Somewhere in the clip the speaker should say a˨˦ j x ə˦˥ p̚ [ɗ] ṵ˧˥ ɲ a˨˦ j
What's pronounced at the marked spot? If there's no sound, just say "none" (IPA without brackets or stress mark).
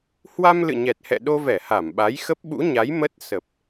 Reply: ɓ